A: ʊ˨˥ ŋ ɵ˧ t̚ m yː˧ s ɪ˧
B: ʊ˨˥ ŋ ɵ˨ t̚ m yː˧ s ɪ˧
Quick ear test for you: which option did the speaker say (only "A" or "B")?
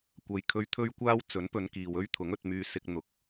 A